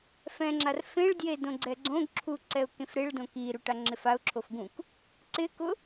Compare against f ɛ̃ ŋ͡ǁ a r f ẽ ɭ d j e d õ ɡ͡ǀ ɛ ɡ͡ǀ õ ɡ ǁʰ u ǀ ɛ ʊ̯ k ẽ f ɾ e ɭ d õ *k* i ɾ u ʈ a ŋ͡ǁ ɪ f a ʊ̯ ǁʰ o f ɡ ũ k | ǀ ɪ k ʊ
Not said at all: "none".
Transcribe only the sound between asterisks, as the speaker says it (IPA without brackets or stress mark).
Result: k